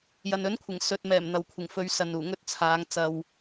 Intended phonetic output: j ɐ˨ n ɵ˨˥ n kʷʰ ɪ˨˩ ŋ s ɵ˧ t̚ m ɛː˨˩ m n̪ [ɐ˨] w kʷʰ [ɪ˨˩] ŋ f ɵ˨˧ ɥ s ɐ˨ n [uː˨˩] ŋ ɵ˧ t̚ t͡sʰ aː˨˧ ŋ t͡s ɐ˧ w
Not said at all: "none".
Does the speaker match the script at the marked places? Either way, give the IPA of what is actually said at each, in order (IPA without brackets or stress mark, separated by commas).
ɐ˨, ɪ˨˩, uː˨˩